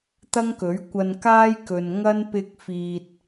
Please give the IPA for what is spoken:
t̪ ɐ˥ ŋ k ɵ˨˥ ɥ kʷ ɐ˧ n k aː˥ j k ɵ˨ n ŋ ɐ˥ n p ɪ˧ k̚ f iː˨ t̚

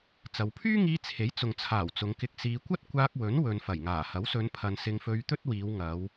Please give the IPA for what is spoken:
t͡s ɐ˨˧ w pʰ yː˥ ŋ iː˧ t͡sʰ e˨˥ j t͡s ʊ˨ ŋ t͡sʰ aː˨˩ w t͡s ʊ˨˧ ŋ k ɪ˧ k̚ s iː˧ kʷ ɐ˥ t̚ kʷ aː˧ k̚ w ɵ˨˥ n w ɵ˨ n f ɐ˨˩ j ŋ aː˨˩ h ɐ˨˥ w s ɵ˨˧ n pʰ ɐ˨ n s ɪ˧ ŋ f ɵ˧ ɥ t̪ ɵ˥ t̚ w iː˨˧ w ŋ ɐ˨˧ w

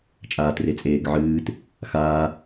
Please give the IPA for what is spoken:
t͡ʃʼ aː t r e t͡sʼ eː ɡ ʕ ɨː t | x aː

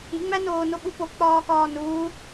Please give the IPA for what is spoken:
i ŋ͡m æ n oː n o ɓ u p o k͡p ɒː k ɒː n uː

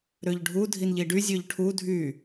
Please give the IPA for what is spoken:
ɾ ø ʎ ɖʱ u dʱ i n ʎ i ɖ y zʲ ø ʎ ʈʰ u dʱ y

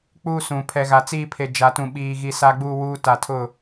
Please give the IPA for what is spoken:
k͡p uː˦ s ũ˨ pʰ ɛ˨ ɣ a˨ t͡s iː˦ pʰ e˨ d͡ʒ a˨ t ũ˨ ɓ iː˨ ɣ i˨ s a˨ ɡ͡b uː˨ w uː˨ t a˨ tʰ ʊ˦˨

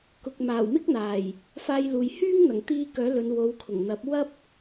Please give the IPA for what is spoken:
k ʊ˨ k̚ m aː˨˩ w m ɪ˥ k̚ n̪ aː˨˩ j | f aː˧ j l uː˨ j h yː˥ ŋ n̪ ɐ˨˩ ŋ t̪ iː˧ k œː˨˥ l ɵ˨˧ n w o˨˧ w kʰ ʊ˨˩ ŋ n̪ ɐ˨˥ p̚ w ɐ˥ p̚

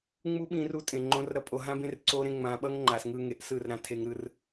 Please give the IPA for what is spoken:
ŋ͡m u˦ ɓ ĩ˧ r u˧ tʼ ẽ˨ ŋ͡ǃ õ˧ r ɾ ʌ˧ pʼ o˨ ɦ ã˦ b ẽ˦ r ǀ o˦ ɾ ẽ˦ ŋ͡m ã˧ ɓ ʌ˦ ŋ ŋ͡ǃ a˨ s ŋ ɯ˧ ŋ e˨ ʔ s ɯ˦˨ r ɾ ã˧ tʰ e˧ ŋ ɾ ɯ˧ r

